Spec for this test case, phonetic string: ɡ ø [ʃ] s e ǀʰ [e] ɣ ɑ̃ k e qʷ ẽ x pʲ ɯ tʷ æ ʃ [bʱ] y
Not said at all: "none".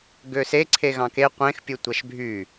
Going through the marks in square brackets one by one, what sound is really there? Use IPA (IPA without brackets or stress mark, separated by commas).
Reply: none, e, bʱ